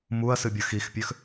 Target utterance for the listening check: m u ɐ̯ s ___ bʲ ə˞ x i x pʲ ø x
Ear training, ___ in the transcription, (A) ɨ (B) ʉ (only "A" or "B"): A